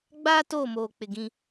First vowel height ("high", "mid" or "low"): low